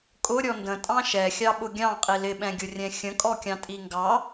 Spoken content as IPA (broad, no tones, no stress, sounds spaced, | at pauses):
kʼ ʊ ɾʲ ɔ n d ə̃ tʼ ɑ̃ ʃ ɛ xʲ ɑ ɓ ʊ ɡʲ ɑ̃ qʼ i l ɪ ɓ ɛ̃ ɡʲ ʊ rʲ ɛ̃ xʲ ə̃ kʼ ɔ kʲ ɑ̃ tʼ i ŋ ɡ ɑ